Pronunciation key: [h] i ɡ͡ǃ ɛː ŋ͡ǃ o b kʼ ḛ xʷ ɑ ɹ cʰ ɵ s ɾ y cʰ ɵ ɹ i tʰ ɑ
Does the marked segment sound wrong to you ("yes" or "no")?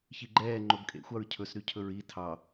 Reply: yes